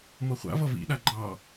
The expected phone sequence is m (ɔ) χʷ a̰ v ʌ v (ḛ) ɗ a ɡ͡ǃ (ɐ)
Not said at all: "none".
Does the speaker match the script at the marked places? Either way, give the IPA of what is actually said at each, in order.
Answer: ʌ, ḭ, ɑ

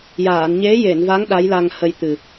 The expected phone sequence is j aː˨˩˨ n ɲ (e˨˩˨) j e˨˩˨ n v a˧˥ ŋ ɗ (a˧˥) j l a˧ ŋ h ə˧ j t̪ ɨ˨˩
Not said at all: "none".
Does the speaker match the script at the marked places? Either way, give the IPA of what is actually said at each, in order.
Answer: e˧˥, a˧˥

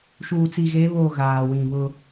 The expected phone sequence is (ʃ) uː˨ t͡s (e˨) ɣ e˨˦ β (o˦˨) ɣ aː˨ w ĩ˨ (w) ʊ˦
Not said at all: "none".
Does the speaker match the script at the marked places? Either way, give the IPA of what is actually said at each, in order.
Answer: ʃ, i˨, o˦˨, β

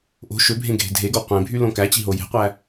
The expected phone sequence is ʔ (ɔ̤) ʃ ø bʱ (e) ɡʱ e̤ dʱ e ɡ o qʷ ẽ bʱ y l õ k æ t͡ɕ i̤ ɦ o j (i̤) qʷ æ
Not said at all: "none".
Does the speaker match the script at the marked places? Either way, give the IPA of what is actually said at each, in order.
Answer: o̤, ẽ, e̤

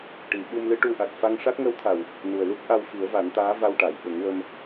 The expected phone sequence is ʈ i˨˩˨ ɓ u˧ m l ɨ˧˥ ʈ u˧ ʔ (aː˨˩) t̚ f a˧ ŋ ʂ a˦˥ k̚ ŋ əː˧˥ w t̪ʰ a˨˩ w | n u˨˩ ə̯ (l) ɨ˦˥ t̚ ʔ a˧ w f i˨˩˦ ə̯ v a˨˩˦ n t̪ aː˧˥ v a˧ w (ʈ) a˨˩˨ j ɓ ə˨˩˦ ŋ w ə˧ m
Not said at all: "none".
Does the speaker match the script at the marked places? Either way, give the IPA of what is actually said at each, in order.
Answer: a˨˩, l, ʈ

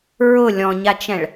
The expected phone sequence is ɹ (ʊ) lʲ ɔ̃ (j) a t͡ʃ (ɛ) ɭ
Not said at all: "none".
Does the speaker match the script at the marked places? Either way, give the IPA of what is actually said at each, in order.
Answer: ʊ, ɲ, ɛ̃

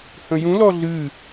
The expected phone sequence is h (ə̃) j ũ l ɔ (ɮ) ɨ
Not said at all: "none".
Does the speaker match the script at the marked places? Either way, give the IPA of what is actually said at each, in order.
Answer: ə̃, ɮ

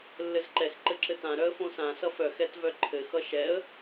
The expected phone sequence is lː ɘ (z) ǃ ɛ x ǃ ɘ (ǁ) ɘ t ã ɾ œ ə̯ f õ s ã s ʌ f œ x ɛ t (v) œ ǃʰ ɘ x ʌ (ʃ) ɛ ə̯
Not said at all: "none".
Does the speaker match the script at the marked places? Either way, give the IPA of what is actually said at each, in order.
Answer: z, ǁ, v, ʃ

